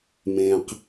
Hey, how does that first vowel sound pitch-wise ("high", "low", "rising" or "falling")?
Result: low